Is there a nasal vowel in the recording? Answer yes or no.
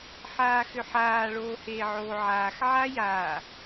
no